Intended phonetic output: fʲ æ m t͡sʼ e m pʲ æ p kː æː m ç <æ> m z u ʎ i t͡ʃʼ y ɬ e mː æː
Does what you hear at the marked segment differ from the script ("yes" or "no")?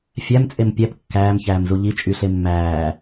yes